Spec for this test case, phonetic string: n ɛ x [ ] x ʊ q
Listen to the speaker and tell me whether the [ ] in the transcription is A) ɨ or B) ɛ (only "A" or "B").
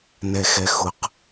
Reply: B